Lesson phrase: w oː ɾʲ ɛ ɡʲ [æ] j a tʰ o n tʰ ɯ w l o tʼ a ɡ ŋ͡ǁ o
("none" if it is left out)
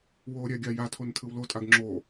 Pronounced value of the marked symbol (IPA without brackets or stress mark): a